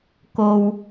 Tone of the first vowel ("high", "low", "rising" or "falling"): low